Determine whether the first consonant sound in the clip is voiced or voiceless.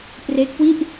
voiceless